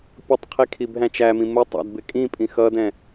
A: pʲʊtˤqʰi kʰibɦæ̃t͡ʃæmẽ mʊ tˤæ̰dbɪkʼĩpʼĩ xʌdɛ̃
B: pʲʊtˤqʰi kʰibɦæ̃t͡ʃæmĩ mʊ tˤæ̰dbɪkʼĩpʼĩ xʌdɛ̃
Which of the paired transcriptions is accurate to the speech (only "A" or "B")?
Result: B